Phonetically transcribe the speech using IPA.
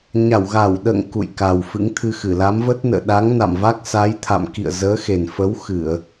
ɲa˧˩wɣa˧˩w ɗə̰ː˧˨ŋ kṵ˧˨jka˨˩w fɨ̰˧˥ŋt̪ʰɨ˧xɨ˧˩ la˨˦mvə˦˥t̚nə̰ː˧˨ ɗa˨˦ŋna̰˧˨mva˦˥k̚ sa˨˦jt̪ʰa̰˧˨m kḭ˧˨ə̯zəː˨˦xe˨˩nfə˨˦w xɨ˧˩˨ə̯

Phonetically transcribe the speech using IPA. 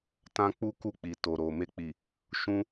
tã˦ k͡pu˦ ku˦˨k͡pi˨ to˨ɾo˨ me˧k͡pi˨ | ʃũ˦

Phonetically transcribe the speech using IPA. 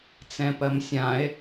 t͡sɛ̃pɜmsʲãe̯

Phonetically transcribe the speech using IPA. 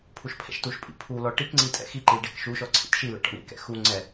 pʰuʃpʰɛ̰ʃtuʃpʼḭ pʰulɔ ʈikŋ͡ǀi tʼɛ̰xiǃil ɖekʃuʃɔ ǀʰḭtʃilɛ̰ ʈɔ̰ɳḭkɛ̰ xu ŋ͡ǀɛ

